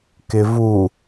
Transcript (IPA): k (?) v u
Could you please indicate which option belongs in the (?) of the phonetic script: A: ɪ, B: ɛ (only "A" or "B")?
A